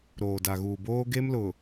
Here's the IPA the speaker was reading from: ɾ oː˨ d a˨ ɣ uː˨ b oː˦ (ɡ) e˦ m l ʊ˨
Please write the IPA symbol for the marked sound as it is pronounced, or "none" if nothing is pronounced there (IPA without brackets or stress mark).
ɡ